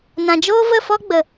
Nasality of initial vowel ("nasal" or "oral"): nasal